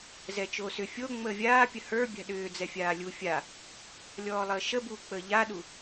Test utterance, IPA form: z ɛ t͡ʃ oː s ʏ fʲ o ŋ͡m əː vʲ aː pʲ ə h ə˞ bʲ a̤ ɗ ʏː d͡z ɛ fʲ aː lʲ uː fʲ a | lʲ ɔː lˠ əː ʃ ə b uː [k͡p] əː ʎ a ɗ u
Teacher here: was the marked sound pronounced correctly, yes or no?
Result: yes